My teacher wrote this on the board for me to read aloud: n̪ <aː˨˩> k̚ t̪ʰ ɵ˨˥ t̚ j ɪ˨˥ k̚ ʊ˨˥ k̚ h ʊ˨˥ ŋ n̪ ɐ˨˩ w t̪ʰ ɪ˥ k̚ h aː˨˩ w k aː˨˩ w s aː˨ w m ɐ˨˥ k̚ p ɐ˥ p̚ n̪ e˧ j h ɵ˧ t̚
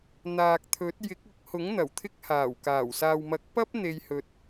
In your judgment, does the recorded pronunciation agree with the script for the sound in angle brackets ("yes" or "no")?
no